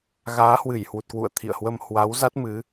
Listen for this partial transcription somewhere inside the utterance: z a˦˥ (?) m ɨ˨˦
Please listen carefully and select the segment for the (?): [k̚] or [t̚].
t̚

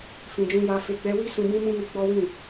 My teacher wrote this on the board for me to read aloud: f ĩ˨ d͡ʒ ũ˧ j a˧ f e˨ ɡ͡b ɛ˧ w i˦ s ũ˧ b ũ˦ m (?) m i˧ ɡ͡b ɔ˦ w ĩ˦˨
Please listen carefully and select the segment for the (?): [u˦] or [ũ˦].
ũ˦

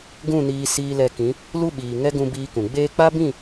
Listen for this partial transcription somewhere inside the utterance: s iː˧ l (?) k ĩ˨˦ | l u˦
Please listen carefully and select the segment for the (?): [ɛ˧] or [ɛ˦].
ɛ˧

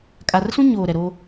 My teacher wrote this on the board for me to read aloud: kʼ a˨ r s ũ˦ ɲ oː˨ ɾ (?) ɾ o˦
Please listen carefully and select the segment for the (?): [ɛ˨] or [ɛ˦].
ɛ˨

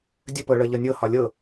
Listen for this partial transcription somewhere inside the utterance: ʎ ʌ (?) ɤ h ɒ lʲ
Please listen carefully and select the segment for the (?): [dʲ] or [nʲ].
nʲ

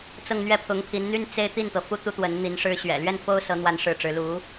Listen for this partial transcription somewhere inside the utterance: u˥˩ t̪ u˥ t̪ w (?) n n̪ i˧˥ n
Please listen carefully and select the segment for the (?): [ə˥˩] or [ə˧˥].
ə˧˥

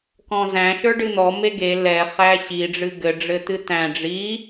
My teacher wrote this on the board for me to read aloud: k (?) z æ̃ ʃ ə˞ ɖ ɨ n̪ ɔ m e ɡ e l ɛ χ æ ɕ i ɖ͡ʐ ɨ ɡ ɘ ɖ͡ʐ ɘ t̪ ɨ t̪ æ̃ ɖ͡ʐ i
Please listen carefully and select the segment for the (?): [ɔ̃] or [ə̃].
ɔ̃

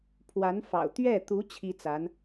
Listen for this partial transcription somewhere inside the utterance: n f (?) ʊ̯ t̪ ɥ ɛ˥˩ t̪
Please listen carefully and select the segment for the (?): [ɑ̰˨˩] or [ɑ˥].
ɑ̰˨˩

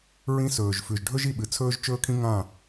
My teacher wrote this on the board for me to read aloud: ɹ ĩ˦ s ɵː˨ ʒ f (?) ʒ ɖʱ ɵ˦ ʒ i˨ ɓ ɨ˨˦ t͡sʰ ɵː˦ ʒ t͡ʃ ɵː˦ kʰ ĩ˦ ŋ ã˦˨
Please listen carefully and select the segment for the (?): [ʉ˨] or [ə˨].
ʉ˨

